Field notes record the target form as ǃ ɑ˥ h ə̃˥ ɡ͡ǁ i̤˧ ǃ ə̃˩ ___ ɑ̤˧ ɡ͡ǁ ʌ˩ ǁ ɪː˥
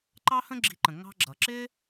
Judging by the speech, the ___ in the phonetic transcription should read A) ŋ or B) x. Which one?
A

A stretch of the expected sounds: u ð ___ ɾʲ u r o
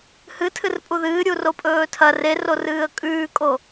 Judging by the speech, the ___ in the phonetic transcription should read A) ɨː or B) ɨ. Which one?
A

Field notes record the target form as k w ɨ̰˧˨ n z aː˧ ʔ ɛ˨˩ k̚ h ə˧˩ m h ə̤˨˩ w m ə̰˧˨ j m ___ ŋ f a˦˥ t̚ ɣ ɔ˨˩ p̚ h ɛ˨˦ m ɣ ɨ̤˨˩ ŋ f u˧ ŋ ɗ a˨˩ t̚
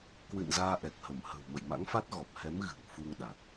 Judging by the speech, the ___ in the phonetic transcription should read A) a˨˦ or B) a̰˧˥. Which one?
B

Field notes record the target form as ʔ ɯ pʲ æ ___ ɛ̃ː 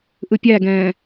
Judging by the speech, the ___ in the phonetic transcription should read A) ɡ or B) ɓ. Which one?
A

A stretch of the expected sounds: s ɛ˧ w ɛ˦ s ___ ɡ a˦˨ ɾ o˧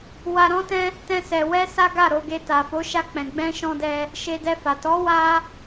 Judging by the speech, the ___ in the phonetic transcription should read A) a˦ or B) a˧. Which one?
A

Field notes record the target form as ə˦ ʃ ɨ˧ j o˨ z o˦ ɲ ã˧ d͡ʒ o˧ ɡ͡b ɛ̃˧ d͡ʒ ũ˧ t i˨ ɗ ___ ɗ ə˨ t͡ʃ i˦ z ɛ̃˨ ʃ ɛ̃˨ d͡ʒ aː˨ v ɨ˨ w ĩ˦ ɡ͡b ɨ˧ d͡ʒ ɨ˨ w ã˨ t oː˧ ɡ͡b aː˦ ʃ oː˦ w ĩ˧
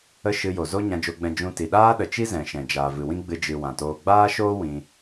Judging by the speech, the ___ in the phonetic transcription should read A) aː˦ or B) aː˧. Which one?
A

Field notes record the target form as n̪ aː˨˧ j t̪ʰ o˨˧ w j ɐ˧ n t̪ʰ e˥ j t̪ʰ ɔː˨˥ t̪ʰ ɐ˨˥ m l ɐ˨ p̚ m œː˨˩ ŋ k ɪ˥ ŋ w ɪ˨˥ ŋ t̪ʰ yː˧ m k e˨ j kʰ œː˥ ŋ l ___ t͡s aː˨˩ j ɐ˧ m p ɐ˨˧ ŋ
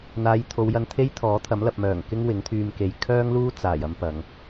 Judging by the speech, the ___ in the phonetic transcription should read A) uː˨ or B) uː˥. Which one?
B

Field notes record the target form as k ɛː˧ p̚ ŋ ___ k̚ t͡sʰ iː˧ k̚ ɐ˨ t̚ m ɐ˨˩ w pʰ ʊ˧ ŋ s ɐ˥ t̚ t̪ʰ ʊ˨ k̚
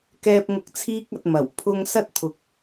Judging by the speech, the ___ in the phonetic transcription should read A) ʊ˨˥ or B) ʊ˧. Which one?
B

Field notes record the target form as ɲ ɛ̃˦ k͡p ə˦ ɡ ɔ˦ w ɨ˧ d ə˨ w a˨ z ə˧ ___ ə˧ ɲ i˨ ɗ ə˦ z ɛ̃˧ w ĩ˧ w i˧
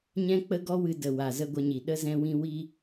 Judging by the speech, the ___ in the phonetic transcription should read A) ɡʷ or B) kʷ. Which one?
A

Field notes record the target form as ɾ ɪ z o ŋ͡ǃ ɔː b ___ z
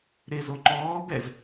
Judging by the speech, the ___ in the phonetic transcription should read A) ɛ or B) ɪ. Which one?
A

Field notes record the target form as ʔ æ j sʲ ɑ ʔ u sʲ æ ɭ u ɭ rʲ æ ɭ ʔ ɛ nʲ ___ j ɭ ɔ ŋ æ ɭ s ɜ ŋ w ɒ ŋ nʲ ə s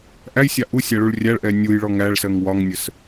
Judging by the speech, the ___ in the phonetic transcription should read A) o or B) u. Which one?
B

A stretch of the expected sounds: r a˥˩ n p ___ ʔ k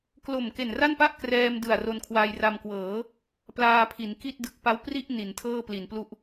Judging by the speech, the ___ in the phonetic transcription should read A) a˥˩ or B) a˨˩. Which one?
A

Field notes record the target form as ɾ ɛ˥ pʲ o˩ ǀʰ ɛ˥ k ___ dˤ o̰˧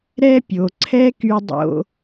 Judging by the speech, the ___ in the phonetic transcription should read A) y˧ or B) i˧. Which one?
A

